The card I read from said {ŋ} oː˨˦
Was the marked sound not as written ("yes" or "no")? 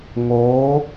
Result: no